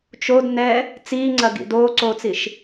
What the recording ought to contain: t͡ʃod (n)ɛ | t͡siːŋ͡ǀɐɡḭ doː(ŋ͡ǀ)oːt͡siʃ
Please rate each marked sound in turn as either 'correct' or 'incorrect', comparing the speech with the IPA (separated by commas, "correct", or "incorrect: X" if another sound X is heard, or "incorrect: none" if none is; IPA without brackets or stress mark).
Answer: correct, incorrect: ǀ